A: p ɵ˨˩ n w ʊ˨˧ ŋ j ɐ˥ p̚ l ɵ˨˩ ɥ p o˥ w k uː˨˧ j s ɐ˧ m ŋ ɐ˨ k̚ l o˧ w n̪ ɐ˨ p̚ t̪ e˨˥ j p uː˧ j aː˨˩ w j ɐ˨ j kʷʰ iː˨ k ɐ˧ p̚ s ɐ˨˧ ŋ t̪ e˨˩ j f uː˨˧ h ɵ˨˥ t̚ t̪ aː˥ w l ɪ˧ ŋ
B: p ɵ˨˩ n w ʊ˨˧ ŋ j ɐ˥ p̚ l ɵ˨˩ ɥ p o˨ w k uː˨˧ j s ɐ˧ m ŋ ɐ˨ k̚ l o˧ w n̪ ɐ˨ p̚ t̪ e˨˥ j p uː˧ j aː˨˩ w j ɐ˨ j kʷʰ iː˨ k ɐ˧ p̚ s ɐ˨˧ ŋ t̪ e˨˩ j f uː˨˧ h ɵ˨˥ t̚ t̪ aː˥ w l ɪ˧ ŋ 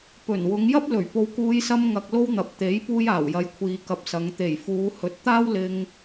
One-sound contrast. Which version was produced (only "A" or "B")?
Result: B